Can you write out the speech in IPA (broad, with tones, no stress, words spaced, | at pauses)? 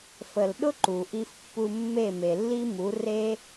fə˩l ɗʊ˥ǃu˩ʔi˧fpːu˧ mːe˥˩me˩lːi˥mu˩˥ re˥